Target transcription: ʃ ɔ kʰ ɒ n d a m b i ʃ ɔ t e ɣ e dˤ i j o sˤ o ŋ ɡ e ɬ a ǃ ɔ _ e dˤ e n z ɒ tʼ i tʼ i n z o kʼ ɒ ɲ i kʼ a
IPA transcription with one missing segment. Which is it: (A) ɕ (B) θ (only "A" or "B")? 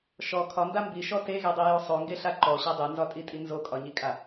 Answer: A